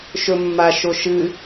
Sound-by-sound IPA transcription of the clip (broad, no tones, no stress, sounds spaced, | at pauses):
ʃ ɵ mː a ʃ o ʃ ɨ